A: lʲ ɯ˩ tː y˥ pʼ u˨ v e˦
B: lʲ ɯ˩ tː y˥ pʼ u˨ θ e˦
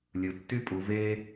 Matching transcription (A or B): A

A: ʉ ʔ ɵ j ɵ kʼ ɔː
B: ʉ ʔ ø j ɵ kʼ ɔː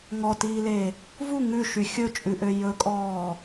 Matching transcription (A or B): B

